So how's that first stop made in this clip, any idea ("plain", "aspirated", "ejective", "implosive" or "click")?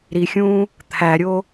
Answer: aspirated